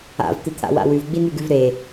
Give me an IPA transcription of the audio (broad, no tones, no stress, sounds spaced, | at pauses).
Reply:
a̰ v t̪ ɨ t̪ʰ a̰ w a̰ w ʉ v ɡ͡b i n ʉ ɡ ʉ v ɾ e